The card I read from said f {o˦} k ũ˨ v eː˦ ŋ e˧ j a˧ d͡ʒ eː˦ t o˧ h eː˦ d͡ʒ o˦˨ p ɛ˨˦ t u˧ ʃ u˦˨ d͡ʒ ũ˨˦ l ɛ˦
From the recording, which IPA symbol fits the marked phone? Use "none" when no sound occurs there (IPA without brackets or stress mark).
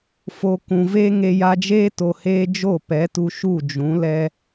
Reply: o˨